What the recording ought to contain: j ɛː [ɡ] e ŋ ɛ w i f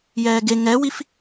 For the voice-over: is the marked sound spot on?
yes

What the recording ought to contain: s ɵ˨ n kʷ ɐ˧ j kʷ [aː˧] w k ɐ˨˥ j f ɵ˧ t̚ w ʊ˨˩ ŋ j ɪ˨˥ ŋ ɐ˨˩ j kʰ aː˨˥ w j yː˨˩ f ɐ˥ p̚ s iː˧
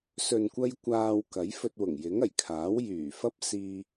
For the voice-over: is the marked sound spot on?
yes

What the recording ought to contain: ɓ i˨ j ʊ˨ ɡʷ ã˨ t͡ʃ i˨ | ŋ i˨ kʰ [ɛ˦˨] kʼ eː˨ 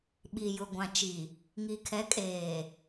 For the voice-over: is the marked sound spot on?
no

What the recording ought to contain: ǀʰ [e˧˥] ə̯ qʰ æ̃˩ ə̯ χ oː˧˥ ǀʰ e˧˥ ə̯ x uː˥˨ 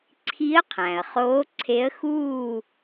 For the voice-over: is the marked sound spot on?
no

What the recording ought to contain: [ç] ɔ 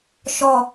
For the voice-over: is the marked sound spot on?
no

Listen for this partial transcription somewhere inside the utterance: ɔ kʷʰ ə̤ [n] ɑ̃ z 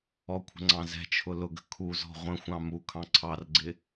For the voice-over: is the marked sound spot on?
no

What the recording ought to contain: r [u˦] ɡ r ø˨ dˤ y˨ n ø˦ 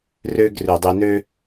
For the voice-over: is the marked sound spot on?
no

